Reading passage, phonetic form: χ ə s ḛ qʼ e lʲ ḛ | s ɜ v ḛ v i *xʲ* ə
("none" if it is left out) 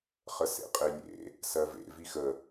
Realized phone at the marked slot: x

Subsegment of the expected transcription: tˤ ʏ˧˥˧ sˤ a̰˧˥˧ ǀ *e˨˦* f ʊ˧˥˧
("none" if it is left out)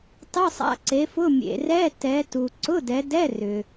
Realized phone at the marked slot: e˨˦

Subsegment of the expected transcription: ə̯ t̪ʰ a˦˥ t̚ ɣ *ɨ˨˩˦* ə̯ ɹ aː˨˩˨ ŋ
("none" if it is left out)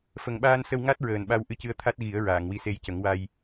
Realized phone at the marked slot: i˨˩˦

